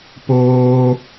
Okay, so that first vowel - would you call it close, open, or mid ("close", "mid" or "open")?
mid